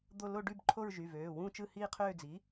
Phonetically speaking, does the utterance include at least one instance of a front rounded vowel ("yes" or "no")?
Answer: yes